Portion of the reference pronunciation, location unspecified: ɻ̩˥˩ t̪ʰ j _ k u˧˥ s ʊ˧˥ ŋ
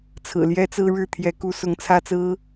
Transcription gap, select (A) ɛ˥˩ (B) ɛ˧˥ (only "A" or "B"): B